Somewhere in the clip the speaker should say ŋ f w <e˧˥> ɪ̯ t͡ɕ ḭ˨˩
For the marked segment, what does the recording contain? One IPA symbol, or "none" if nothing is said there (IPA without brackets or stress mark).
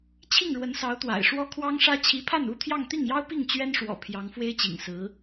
e˥